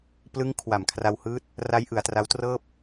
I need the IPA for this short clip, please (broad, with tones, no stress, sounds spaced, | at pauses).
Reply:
p l ɯ˦˥ ŋ kʰ w a˨˩ m kʰ r a˧ w h ɯː˦˥ t̚ | r a˦˥ j ʔ ɯ˩˦ a̯ t r a˦˥ w t r ɤː˥˩ p̚